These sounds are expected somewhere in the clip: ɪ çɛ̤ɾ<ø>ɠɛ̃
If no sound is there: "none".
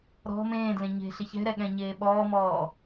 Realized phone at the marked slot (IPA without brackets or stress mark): ɛ